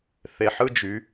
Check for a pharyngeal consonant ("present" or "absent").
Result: present